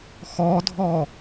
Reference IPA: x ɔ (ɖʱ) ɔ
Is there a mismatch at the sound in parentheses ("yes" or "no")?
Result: yes